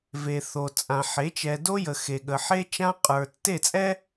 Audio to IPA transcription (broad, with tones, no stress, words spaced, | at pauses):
ve˨ θo˨t͡sʼã˨ ħe˨˦t͡ʃɛ˨do˦jə˨ xe˨ɠə˨ħe˦t͡ʃã˦ qʼə˞˨ tːe˦˨t͡sʼɛ˦